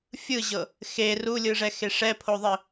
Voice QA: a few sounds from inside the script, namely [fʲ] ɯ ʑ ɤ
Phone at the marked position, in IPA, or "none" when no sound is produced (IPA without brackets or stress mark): fʲ